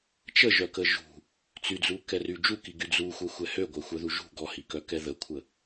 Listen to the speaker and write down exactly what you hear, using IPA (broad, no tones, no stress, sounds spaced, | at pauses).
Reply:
t͡ʃ ə ʒ œ k ə ʒ ṳ | t͡s y d͡z u k ɛ r y d͡ʒ u k i ɡ y d͡z u xʷ ɛ xʷ ɛ h ø ɡʷ œ xʷ œ ð u ʒ ṳ ɡ ɔ h i k œ k ɛ ð ə kʷʰ ə